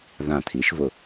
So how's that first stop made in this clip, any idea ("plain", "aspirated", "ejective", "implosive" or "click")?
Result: aspirated